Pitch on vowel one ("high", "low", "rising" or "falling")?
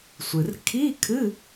low